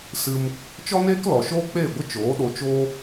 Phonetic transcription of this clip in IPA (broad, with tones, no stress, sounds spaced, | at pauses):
s ɨ˧ m | t͡ʃ ɔ˦ n eː˦ k l ɔ˨ ʃ oː˦ k͡p eː˦˨ ɡʷ ə˦ t͡ʃ oː˨˦ ɗ o˧ t͡ʃ oː˦